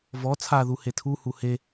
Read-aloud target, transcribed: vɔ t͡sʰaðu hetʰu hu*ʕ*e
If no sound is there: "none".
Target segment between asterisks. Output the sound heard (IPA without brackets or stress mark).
h